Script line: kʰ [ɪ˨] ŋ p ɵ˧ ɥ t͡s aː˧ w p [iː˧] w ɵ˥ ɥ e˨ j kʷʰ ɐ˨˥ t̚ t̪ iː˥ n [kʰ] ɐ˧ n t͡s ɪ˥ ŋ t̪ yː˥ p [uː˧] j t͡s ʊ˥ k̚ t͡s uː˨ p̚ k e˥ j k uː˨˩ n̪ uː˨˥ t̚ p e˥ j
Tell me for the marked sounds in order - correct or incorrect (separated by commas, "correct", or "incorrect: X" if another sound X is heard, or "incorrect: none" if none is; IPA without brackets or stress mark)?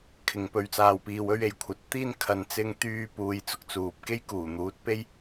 correct, correct, correct, correct